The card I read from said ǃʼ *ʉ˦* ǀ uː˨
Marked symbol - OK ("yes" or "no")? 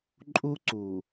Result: no